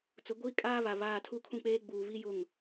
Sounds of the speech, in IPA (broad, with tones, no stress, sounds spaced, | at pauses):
t͡s ʊ˨˦ ɡʷ iː˦ kʼ aː˦ β a˨ β aː˨ tʰ u˦˨ kʰ ũ˦ k͡p eː˦ ɡ͡b uː˨ β i˦ j ʊ˦˨ ŋ